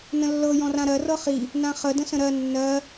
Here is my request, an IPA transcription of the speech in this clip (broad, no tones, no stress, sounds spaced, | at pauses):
n ə̃ lː ɤ j ɔ̃ r ã ɾ ɜ r ɤ χ i | n ã χ ə d ə̃ s ə̃ ɾ ɜ nː ɜ